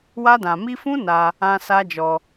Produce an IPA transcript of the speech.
wa˧dã˨mi˧fũ˦ na˧ | ã˧ sa˦d͡ʒɔ˧

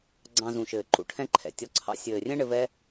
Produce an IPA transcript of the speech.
ɡ͡ǀɑ̃˧zũ˨ʃɘː˨ǃṵ˨ ʈʰɛ̃˦ǃʰɛ̰˨ tʲɔ˨˦ǀʰɑ̰˧ sʲɘː˨rʲɛ̃˦ ɳɘ˧vɛ˦

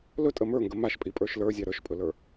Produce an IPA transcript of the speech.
lɵtʼə mə˞ŋɡə maʃpʼipʼə˞ʃ lə˞zʲa ɾə˞ʃpʼɵlə˞

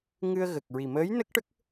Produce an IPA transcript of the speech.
ŋɨ˧ə̯ɣə˨˩k̚ ɹi˨˩məː˧˥jnə˦˥k̚ʈə˦˥k̚

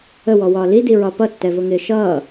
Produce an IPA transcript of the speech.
əwɔwɒː lidiɹɒ pʌtːɛvʊŋɪː ʃʌː

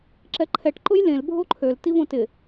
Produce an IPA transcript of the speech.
ǁɛǃʰɛʈ ǃʊjlẽl bʱoǃʰøl tivõtɪ

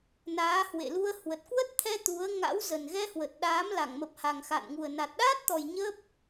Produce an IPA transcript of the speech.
naː˨˦hwḛ˧˨lu˧ə̯ hwə˨˩t̚kwə˦˥t̚t̪ʰɛ˧ t̪u˨˦ə̯ ŋa̰˧˥wzə˨˩nɣɛ˧ hwə˨˩t̚ɗaː˨˦m la˧˩ŋmə˨˩p̚ha˨˩ŋ xa̰˧˨nŋu˨˩ə̯ na˨˩t̚ɗaː˦˥t̚t̪ɔ˨˩j ɲə˦˥p̚

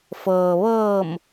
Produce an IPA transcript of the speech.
fɤː˩ʋɤː˧˩m

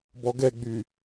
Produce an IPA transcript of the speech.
bɔɡɛɡ͡by

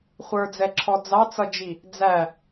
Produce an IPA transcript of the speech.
χʷə˞d͡zɛǁʰɔ d͡zɑt͡sʌd͡ʒi | d͡zæ

